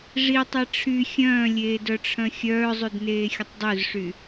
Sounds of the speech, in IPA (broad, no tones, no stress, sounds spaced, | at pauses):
ʐ i tˤ e ʈ͡ʂʰ y xʲ œ̃ː lʲ eː d œ ʈ͡ʂʰ œ̃ xʲ œː zˤ y d n eː xʲ ə tˤ dˤ ø z ʂ y